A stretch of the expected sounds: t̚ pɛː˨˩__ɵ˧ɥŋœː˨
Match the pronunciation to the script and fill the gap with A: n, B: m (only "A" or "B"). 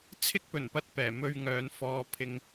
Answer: B